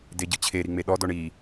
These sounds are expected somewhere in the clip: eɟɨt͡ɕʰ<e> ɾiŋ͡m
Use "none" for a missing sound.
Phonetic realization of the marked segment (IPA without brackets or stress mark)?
e